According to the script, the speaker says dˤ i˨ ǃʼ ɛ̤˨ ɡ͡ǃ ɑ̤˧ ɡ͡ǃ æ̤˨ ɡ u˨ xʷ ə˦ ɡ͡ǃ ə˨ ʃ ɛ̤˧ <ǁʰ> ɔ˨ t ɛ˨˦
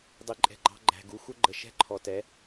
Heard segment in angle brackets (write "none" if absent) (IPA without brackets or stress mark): ǃʰ